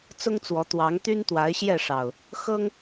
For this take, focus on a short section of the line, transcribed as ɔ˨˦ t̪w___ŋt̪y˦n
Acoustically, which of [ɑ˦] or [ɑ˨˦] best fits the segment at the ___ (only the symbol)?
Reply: ɑ˨˦